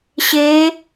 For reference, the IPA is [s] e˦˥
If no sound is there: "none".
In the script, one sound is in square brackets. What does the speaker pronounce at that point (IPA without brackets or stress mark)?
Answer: ɕ